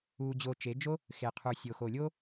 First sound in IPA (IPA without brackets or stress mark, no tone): uː